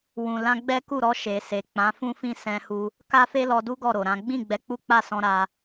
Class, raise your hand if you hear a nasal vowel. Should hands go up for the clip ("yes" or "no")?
yes